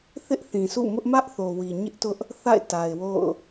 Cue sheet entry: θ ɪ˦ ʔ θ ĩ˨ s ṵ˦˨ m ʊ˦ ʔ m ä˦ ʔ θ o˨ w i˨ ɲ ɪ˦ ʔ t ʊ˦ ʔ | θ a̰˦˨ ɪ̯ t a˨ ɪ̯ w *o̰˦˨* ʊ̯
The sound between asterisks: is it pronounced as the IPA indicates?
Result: yes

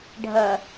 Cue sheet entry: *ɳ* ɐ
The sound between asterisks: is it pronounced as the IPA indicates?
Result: no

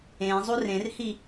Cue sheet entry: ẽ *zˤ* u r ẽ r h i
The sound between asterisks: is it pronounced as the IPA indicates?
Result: yes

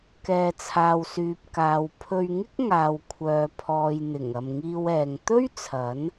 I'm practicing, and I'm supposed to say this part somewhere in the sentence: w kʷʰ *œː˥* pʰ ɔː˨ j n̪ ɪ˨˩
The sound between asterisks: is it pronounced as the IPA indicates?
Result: no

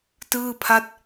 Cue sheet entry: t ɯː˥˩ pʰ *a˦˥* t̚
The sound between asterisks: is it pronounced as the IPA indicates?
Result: no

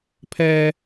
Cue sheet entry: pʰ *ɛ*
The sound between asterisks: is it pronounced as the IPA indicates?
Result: yes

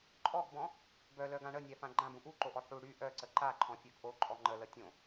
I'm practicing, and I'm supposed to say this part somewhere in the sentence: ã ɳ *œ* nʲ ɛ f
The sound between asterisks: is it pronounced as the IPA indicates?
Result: no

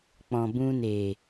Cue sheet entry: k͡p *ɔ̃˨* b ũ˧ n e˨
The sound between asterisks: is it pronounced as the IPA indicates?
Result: yes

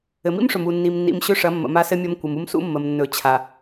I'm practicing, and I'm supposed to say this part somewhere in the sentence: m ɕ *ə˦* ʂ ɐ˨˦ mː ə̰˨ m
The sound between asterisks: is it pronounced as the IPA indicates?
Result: no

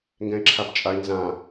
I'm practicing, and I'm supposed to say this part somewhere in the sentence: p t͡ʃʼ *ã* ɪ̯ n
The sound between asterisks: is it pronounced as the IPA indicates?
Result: no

